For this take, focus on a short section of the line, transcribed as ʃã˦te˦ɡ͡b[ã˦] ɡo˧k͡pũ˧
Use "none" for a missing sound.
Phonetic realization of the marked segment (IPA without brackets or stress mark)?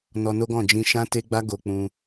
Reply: a˦